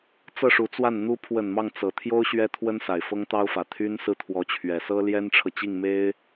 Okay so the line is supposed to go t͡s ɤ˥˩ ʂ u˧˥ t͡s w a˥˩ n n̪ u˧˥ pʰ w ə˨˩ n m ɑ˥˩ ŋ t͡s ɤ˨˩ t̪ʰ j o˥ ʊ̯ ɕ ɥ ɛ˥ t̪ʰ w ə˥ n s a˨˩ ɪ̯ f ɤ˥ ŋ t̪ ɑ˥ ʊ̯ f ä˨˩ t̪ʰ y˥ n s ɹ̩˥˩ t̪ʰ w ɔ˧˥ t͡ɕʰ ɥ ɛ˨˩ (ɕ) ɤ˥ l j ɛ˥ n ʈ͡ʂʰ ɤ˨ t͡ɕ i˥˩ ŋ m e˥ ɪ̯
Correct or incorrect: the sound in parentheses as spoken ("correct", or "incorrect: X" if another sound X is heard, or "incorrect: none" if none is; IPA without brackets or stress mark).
incorrect: s